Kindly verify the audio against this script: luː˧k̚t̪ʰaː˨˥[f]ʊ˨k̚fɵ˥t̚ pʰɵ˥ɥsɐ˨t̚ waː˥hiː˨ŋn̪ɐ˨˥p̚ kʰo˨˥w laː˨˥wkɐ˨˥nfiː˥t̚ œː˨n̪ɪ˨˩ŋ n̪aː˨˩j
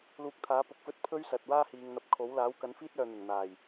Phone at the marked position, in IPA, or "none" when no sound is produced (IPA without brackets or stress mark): p